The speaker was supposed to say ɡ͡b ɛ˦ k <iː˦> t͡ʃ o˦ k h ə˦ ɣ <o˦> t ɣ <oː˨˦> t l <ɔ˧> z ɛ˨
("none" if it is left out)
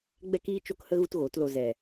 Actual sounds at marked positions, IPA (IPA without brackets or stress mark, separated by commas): iː˦, u˦, oː˨˦, o˧